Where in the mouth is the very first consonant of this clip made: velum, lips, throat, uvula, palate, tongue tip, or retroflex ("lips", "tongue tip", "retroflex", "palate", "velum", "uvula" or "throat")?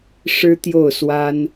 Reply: retroflex